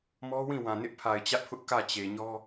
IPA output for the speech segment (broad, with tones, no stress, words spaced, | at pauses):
mɔ˦wĩ˦˨wã˨ nɪ˦ʔpʰa˨ɪ̯t͡ɕä˦ʔpʰʊ˦ʔ kä˦˨ t͡ɕe˨ɲɔ˦